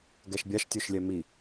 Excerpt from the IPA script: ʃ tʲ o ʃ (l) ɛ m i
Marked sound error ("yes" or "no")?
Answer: yes